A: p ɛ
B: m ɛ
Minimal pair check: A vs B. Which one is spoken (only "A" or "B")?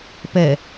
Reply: A